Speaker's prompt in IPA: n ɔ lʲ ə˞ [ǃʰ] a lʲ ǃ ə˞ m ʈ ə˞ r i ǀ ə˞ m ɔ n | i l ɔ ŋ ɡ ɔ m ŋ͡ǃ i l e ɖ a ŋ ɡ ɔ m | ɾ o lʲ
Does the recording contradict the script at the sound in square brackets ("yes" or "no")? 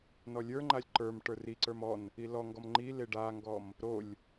yes